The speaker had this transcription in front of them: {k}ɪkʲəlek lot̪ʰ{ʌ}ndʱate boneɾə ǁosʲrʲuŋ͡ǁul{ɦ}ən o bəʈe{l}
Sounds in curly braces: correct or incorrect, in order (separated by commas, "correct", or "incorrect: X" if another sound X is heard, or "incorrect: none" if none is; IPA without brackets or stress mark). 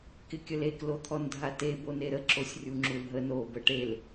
correct, incorrect: ɔ, correct, correct